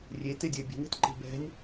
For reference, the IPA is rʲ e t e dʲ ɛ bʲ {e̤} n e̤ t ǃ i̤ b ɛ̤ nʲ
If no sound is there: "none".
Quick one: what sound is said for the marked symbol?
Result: ɛ̤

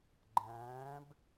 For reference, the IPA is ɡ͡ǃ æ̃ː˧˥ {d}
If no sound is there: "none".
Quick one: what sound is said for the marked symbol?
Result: b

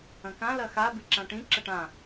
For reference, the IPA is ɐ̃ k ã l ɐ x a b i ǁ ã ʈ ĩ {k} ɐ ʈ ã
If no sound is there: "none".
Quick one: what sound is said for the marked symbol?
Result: ǁ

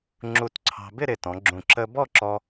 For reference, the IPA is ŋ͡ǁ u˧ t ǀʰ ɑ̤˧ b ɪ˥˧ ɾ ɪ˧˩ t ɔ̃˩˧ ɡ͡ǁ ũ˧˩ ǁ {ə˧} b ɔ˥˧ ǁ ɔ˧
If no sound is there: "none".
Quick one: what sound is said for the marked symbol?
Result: ə˧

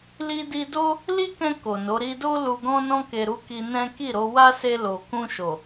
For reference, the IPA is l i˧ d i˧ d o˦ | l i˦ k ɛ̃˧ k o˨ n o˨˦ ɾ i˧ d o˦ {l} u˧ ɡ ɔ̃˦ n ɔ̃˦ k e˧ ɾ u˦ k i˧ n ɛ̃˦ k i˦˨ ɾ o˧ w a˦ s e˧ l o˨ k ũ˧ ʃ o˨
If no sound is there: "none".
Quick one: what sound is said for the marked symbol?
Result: l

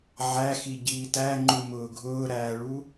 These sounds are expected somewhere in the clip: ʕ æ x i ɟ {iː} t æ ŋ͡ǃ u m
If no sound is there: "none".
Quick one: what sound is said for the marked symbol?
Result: iː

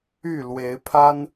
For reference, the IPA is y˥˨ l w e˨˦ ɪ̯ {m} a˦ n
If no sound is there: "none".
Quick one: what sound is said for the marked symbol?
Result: pʰ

